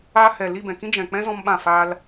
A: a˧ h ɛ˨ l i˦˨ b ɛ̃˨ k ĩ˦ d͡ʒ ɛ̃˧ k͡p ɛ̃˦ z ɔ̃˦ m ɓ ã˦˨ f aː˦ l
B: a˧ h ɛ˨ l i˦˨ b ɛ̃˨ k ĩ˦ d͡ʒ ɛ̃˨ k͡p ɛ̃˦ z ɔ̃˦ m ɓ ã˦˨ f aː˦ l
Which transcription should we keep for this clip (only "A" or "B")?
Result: B